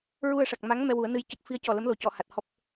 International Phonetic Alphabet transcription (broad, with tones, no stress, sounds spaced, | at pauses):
ɹ u˧ ə̯ ʂ a˨˩ k̚ m a˧˥ ŋ m ɛ˧ w u˨˩˦ ə̯ n ɨ˧ j c ə˦˥ k̚ f i˧˥ ə̯ c ɔ˨˩ l ə˧˥ m l o˨˩ c ɔ˨˩˨ h a˨˩ t̚ h ɔ˦˥ p̚